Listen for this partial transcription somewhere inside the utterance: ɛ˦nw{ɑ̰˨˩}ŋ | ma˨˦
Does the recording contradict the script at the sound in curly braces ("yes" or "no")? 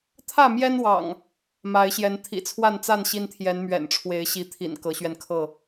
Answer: no